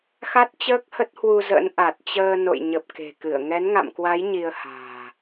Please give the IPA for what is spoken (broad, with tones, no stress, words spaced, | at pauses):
xa˦˥t̚t͡ɕəː˦˥k̚ hə˦˥t̚hwu˧ zə̰˧˥nʔa˨˩t̚t͡ɕəː˧ no̰˧˨jɲə˨˩p̚ ke̤˨˩kɨ˧˩ə̯ ŋɛ˨˦nŋa̰˧˨mkwa˨˦j ɲi˧ə̯ha̤ː˨˩